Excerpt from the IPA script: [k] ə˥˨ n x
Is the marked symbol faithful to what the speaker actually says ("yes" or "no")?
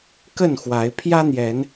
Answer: yes